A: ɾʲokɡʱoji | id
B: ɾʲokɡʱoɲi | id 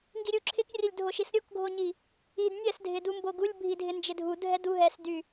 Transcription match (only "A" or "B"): B